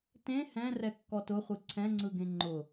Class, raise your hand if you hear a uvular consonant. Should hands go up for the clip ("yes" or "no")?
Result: yes